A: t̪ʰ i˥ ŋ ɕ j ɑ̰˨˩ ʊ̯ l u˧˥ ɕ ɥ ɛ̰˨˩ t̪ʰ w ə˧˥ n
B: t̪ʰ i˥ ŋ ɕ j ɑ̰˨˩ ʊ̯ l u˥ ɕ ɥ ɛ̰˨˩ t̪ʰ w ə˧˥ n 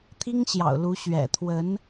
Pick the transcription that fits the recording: A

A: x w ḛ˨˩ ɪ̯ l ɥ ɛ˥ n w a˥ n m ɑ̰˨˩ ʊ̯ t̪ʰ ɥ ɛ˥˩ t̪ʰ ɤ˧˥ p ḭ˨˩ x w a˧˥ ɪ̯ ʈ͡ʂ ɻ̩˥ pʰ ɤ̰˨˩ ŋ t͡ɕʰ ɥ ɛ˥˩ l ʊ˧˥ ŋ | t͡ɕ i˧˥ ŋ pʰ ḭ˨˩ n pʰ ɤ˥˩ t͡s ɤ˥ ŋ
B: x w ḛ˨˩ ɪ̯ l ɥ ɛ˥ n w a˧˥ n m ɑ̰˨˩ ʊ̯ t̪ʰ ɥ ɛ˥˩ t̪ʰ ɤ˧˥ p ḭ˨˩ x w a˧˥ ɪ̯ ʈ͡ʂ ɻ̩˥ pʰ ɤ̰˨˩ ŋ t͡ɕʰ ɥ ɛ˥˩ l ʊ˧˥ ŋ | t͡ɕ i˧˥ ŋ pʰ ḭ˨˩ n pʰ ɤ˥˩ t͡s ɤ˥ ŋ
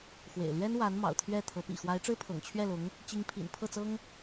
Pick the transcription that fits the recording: B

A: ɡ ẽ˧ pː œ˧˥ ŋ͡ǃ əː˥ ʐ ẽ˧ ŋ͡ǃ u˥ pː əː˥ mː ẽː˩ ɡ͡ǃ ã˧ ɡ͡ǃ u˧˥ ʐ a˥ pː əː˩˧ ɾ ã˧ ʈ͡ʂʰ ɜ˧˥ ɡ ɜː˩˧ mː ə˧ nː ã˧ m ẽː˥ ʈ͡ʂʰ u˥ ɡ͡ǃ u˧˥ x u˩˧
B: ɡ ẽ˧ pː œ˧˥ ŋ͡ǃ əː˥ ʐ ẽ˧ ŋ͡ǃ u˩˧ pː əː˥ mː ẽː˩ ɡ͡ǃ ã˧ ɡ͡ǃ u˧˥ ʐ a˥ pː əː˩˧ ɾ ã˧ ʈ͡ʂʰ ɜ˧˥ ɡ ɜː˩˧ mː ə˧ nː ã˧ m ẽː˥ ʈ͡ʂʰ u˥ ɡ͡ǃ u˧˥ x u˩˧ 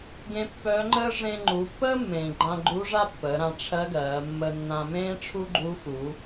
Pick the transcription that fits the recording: B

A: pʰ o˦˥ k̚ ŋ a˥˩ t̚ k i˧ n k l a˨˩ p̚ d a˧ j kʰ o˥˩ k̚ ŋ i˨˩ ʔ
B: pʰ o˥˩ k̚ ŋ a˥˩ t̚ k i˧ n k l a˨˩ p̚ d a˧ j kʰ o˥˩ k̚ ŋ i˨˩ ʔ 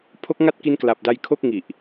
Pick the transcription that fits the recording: A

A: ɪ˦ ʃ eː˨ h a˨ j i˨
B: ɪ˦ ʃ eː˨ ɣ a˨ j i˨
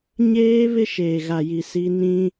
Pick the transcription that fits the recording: B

